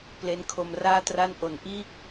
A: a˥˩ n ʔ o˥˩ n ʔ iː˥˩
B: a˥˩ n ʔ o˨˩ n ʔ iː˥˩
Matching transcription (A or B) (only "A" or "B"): B